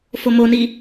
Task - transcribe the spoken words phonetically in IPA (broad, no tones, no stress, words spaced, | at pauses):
fomoni